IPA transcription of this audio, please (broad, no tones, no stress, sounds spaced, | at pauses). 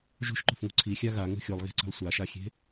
ʒ ṳ ʃ ǃ o̤ f ŋ ṳ ǀʰ i xʲ a ɣ a ŋ ṳ xʲ o lˠ ɣ e̤ ǀ e̤ lˠ sʷ a ʃ a xʲ e̤